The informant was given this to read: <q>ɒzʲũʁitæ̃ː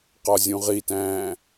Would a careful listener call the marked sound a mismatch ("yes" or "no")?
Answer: no